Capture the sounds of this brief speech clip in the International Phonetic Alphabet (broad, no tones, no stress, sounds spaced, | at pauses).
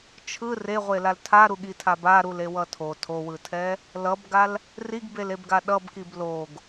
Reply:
t͡ʃʰ ɯ r e ʁʷ e l a l tʰ a ɾ u ɠ i tʰ a b a ɾ u l e w ʌ tʰ o tʰ o w ɯ tʰ ɛ | l ʌ b ɡ a l | r i ɡ b e l e b ɡ a ɗ ʌ b k i b l o ɡ